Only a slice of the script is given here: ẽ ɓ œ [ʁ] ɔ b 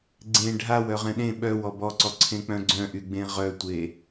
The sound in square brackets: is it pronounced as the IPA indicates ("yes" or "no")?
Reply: no